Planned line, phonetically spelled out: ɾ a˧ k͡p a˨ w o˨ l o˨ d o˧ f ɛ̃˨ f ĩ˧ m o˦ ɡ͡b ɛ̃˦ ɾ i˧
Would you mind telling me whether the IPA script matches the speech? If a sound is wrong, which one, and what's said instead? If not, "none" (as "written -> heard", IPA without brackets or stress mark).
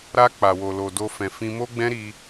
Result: none